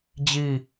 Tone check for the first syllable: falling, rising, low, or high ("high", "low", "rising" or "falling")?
falling